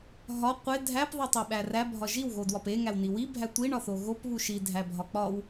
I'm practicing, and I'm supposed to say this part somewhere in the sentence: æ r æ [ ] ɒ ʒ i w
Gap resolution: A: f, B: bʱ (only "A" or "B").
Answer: B